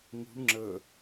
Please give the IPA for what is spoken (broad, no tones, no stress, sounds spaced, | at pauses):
ŋ ṳ ɳ ŋ͡ǁ ə